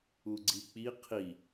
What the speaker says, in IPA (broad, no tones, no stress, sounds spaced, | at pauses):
u ɡ͡ǀ i k͡p i qʰ i